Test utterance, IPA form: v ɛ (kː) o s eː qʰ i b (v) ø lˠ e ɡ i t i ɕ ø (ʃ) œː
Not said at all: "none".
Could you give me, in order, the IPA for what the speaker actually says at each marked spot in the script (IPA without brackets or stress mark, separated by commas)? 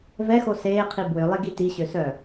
x, w, s